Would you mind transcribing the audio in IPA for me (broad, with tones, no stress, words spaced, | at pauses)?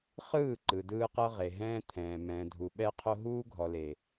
χɯː˦˨ ǃɯ˨dɯː˦qɤ˦ ʁe˨ɦɛ̃ː˦t̪ʰɛ̃ː˨ mɛ̃ː˨dʱu˨ ɓɛ˦qʰo˦ ɦuː˦ɡʱɔ˨le˨